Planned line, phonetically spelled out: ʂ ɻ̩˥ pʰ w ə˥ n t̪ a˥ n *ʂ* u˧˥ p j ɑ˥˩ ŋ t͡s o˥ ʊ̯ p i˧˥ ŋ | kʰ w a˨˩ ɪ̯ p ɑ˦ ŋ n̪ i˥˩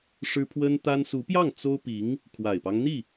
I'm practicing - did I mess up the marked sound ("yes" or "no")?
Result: yes